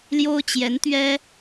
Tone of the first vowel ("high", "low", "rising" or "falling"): high